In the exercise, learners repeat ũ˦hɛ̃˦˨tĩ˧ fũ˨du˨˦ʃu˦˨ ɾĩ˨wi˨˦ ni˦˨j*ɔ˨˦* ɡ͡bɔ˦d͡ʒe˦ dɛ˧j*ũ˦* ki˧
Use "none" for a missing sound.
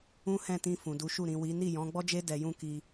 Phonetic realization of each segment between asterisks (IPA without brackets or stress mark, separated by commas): ɔ̃˨˦, ũ˦